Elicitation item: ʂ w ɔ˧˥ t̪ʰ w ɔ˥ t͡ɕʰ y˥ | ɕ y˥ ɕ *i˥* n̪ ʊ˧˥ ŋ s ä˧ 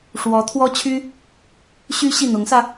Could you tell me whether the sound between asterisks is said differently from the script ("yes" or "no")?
yes